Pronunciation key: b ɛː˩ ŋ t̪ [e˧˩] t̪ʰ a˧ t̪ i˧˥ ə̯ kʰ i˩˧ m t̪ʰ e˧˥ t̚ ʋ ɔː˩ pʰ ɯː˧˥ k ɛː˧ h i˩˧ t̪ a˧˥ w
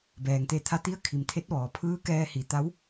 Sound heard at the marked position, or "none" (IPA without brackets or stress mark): e˧˩